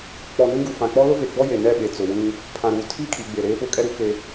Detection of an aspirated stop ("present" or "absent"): present